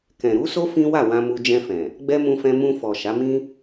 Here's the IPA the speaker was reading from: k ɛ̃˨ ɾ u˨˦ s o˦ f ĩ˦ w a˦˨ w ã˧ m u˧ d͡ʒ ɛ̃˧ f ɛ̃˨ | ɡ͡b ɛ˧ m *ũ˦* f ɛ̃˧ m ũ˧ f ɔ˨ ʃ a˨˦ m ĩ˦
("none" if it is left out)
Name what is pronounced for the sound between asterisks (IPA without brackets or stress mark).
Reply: ũ˧